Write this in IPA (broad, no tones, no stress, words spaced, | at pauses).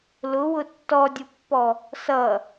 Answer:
lʊwʊ tːɔdʲʊpːɔ | sʌ